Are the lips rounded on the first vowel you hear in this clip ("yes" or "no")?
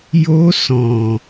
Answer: yes